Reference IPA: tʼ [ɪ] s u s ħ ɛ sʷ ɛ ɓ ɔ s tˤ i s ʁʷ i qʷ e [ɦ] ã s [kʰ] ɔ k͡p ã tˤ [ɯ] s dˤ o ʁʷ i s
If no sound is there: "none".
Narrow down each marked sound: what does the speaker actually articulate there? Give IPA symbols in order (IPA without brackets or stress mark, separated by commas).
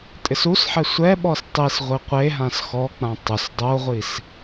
ɪ, ɦ, x, ʊ